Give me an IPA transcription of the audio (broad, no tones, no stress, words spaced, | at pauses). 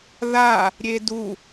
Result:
ða | ɾʲedu